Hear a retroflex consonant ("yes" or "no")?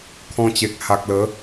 no